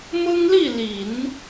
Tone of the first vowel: high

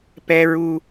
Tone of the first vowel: high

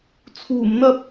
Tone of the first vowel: low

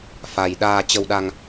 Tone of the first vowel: low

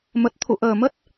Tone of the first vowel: low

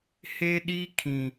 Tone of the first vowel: high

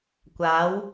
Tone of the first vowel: rising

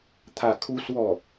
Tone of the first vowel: falling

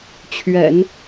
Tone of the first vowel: low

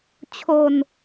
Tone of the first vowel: low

